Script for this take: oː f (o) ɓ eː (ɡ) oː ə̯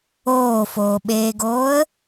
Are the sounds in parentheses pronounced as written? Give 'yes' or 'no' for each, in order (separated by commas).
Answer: no, yes